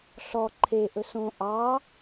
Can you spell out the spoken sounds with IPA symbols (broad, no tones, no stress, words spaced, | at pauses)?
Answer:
ɬɔ ǃʰeʔɵs õ ʔɑ